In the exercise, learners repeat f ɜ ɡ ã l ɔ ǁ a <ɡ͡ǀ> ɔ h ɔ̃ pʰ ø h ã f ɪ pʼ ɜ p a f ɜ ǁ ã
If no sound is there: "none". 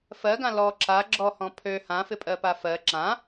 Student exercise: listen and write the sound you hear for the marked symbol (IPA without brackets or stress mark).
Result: ɡ͡ǁ